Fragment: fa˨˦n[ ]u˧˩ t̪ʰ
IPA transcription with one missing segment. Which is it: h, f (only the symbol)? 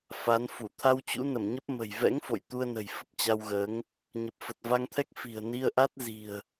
f